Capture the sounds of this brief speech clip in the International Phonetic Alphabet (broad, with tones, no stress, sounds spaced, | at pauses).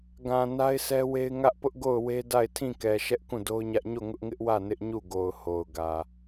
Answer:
ɡ ã˨ n a˦ ɪ̯ s ɛ˦ w e˦ ɪ̯ ŋ ä˦ ʔ p ʊ˦ ʔ ɡ o˦˨ ʊ̯ w e˦ d a˦˨ ɪ̯ tʰ ĩ˦˨ k ɛ˨ ʃ ɛ˦ ʔ k ũ˦˨ d o˦ ʊ̯ ɲ ä˦ ʔ ɲ o˦˨ ŋ ʊ˦ ʔ ŋ ɪ˦ ʔ w ä˦˨ n ɪ˦ ʔ ɲ u˦˨ ɡ o˨ ʊ̯ h o˨ ʊ̯ ɡ ä˨